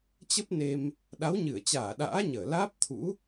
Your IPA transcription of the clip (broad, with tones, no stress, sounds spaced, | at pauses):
t͡ɕ ə˦˥ p̚ n e˧ m | ɗ a˨˦ w ɲ ɨ˧˩ ə̯ t͡ɕ aː˧˩ ɗ a̰ː˧˥ ɲ əː˧˩ l aː˦˥ p̚ t̪ʰ ṵ˧˥